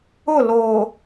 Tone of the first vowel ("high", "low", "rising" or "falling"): falling